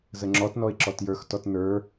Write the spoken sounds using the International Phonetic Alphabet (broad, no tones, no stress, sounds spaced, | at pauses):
z ə ŋ͡ǁ ɔ t n ɔ ɪ̯ ǁ ɔ t j ə˞ x t ɔ t n ə˞